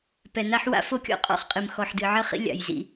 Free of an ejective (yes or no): no